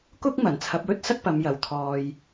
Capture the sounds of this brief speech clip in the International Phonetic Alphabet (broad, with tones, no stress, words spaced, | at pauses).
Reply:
kʊ˥k̚ mɐ˨˩nt͡sʰɐ˨˥p̚wɵ˥t̚sɐ˥k̚ pɐ˨˧mjɐ˨˩wt̪ʰɔː˧j